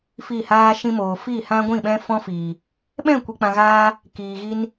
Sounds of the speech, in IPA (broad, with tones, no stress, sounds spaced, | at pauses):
f i˦˨ h aː˦ ʃ ĩ˦ m oː˨ f i˦˨ h ã˦ ɡʷ ĩ˦˨ ɓ ɛ̃˦ f ɔ̃˦ f iː˨ | ɓ ɛ̃˦˨ kʷ i˧ k͡p ã˧ ɣ aː˦ | k iː˨ ɣ i˦ n